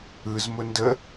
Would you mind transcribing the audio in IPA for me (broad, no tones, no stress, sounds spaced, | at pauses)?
ɯ z m ʊ n d ə